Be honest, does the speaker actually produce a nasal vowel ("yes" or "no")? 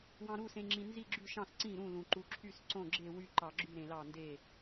yes